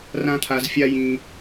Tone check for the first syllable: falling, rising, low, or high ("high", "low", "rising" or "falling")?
high